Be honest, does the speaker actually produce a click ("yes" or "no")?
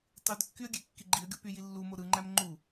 yes